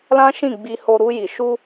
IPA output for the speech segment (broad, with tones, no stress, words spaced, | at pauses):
lã˦ʃĩ˦˨ɡ͡bi˧ho˧ ɾu˧ji˨ ʃu˧